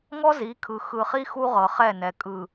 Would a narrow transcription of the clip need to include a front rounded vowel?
no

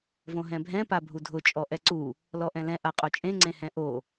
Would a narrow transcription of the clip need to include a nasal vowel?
yes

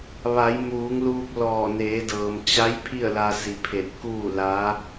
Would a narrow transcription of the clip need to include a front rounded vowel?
no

